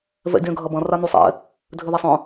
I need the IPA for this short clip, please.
v ɛ̰ dʲ œ̃ ɡʱ ɐ b ɐ̃ r a n u sˤ ɛ̰ | dʱ ʏ ð ɛ sˤ œ̃

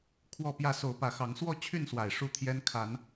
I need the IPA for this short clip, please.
kʰ w ɔ˥˨ p j ä˥˨ s o˨˦ ʊ̯ p ä˨˦ x ɑ˨˦ ŋ s w ɔ˥˨ t͡ɕʰ y˥˨ n s w a˨˩ ɪ̯ ʂ u˥˨ t̪ʰ j ɛ˦ n kʰ a˨˦ n

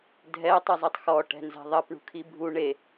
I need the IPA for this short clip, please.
dʱ ɛ tˤ ɨ zˤ i tˤ x ɔ ʈ ɛ̤ n z ɛ̤ ðˤ ɐ p ɳ ṳ kʰ i bʱ u ɳ e

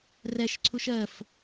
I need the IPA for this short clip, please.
r ɛ ʃ ǀʰ u ʃ ɜ f

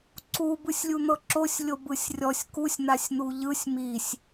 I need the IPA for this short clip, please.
ǀ u b ɯ sʲ lʲ u n̪ ɤ ǁ o sʲ lʲ o b ɯ sʲ rʲ ɔ sʲ k u sʲ n̪ a sʲ n̪ u ʎ ɯ sʲ m i sʲ

